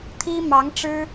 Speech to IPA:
t̪ʰ i˥ m ɑ˧˥ ŋ ʈ͡ʂ ɻ̩˥

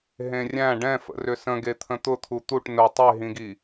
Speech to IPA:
ɦ ẽ rʲ æ̃ ɖ ɛ̃ f ə̰ r ʏ s ə̃ ɡ e t̪ʰ ə̃ t̪ ʊ t̪ʰ u t̪ u ʈ n ʊ tˤ e ɦ ĩ ɡ i

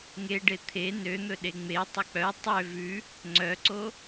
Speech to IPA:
ŋ e ɖ e t̪ʰ e n ø n̪ ɵ ɗ e ŋ͡m e tˤ ɵ k͡p œ tˤ ø v ʉ | ŋ͡ǀ œ ǀ o

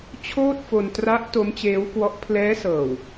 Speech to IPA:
t͡ɕʰ oː˥˩ t̚ f o˧ n t r a˦˥ ʔ t o˦˥ m t͡ɕ eː˦˥ w k w ɔ˦˥ ʔ pʰ l ɛː˦˥ s ɤː˨˩ w

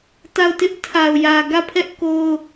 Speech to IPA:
t a˦˨ ʊ̯ t ɪ˦ ʔ tʰ a˨ ʊ̯ j ä˨ ɡ ä˦˨ pʰ ɛ˦ ʔ k o˦ ʊ̯

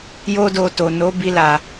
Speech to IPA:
j o˦ d o˧ t o˨ n o˨˦ b i˧ l a˨

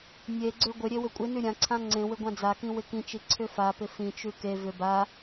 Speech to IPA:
nʲ e ɡ͡ǀ ʏ ɡʷ ɪ ɾʲ e w ʏ kʷʼ ɪ n ʉ ɾʲ ã ǀʰ ã ŋ͡ǀ ẽ w ɪ ɡʷ ã d͡z a k ĩ w ɪ k ĩ t͡ʃ i ǀʰ ʏ f a p ɪ f ĩ t͡ʃ ʉ k e v ʏ b a

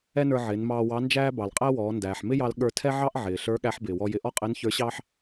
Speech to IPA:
ɛ˥ n ə˞˧ ʕ ɪː˩˧ n m ɑː˧ w ɑ˧˥ n d͡ʒ æː˥ b ɑ˩ l qʼ æ˥ w ɔː˩˧ n d æː˩ ħ m ɪ˥ j ɑ˧ l ɠ ə˞˧ tʰ ɛ˥ ʕ ɑ˥ ʔ ʕ ɪː˩ ɬ ə˞˧˥ ɠ æ˧˥ ħ b ɪː˩ w ɔ˧ j ɪ˧ ʔ ɔ˥ qʼ ɪː˧˥ n ç ə˞˧˥ ɕ ɑː˥ ħ

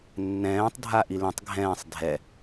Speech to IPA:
nː ɛ̃ː tˤ dʱ a ʔ i l ĩ tˤ ɡʱ ɛ̃ː sˤ dʱ ɛ

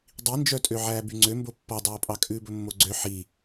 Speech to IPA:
dˤ i n d͡ʒ œ tʼ ø ʕ æː b y ŋ͡ǀ ø m b o pː ɔ dˤ oː pʼ ɑ kʼ ʉː b ɵ mː o ɡ͡ǀ ø ħ i

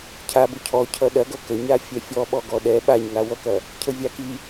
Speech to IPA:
cʰ a b ʊ cʰ ɔ cʰ ʌ ɗ ɐ ɡ ʌ k ə ɲ a fʲ ɛ fʲ ɔ ɓ ɔ ɡ ɔ ɗ ɛ ɓ a ɲ ŋ a w ʌ k ɐ | cʰ ə vʲ a k i

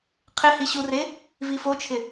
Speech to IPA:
qʰ ɪ h i ɕ u r e | v i f o t͡ʃʰ ɪ

